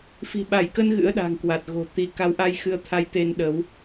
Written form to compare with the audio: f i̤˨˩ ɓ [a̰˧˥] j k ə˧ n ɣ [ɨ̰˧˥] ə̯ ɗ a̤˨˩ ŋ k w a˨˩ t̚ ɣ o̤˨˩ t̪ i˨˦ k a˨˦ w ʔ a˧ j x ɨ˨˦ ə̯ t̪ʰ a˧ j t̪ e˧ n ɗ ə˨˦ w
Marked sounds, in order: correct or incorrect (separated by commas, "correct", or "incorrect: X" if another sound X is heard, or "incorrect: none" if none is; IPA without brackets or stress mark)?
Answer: incorrect: a˧˩, correct